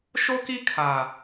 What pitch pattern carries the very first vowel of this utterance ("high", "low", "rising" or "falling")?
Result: high